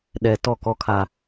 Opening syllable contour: low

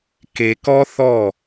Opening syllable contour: low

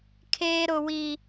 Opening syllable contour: high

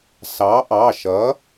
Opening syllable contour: rising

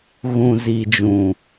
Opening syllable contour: low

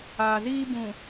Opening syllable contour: low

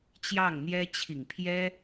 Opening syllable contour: falling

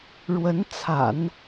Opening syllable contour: rising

